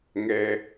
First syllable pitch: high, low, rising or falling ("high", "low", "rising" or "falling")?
high